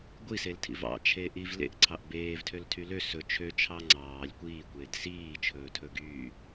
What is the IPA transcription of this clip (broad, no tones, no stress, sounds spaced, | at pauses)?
ɡʷ i s e l tʰ ḭ v ɑ̰ t͡ʃʰ e ʔ i v l ḛ ʔ ǀʰ ɑ ʔ b eː v tʰ ø l tʰ y l ø s ɵ t͡ʃʰ ø t͡ʃʰ ɑ ŋ͡ǀ ɑː lʲ kʷ iː kʷ eː d s iː t͡ʃʰ ɵː tʰ ɵ ɡ yː